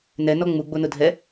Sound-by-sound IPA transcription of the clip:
n ɛ n ɔ ŋ͡m u ɡ͡b o n ʊ dʱ ɛ

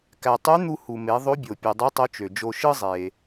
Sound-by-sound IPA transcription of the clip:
k æ˩ tˤ y˧˥ n̪ u˧ h u˩ m e˩˧ ðˤ o˧˥ bʲ o˩ pʲ u˩ dˤ u˧˥ tˤ o˧˥ t͡ʃ ø˩ d͡ʒ o˧ ʃ ɯ˥ zˤ e˩

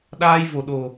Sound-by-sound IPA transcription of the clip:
ɗ aː˧ j v o˧˩ ɗ o˨˩

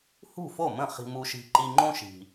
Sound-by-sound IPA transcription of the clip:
h ṳ˥˩ f o˥˩ m ə̃˥˩ χ i̤˧ m u˧ ʃ i̤˧ ǃ i˧ ŋ͡ǃ õ˥ ʃ i̤˩

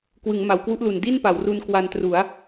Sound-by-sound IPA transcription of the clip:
k w ɯ˩˦ ŋ m a˩˦ w k w u˦˥ ʔ l u˨˩ n d i˥˩ n p a˩˦ w r u˧ n k w a˧ n t r u˩˦ a̯

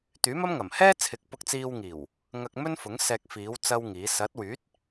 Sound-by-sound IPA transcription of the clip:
t̪ yː˨˥ m ɐ˥ m ŋ ɐ˨˩ m h ɛː˥ t͡sʰ ɪ˨˥ k̚ p ʊ˧ k̚ t͡s iː˧ w ŋ iː˨˩ w | ŋ ɐ˧ k̚ m ɵ˥ n f ʊ˨˥ ŋ s ɛː˧ k̚ f iː˨˥ w t͡s ɐ˥ w ŋ iː˨˥ s ɐ˨˥ t̚ w yː˨˥ t̚

